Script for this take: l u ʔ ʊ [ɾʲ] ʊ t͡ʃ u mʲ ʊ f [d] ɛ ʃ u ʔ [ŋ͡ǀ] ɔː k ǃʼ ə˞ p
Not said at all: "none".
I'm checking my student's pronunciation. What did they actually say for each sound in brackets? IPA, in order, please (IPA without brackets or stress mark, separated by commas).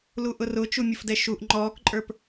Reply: r, d, ŋ͡ǃ